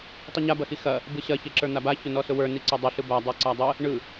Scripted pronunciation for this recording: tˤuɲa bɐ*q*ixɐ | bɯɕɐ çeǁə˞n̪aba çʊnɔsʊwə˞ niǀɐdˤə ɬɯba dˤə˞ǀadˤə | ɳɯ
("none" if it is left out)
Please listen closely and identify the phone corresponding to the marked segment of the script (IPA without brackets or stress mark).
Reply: x